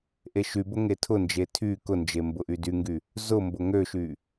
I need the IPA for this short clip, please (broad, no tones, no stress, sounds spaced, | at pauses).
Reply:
ʔ e ʃ y b ʊ ŋ e tʰ ʊ n d͡ʒ e tʰ y k ʊ n d͡ʒ e m b ʊ ʔ y d y ŋ ɡ y | z ʊ m b ʊ ŋ ø ʃ y